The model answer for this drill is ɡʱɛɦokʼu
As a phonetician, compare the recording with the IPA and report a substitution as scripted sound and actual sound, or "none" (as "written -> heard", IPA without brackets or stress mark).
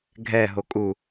none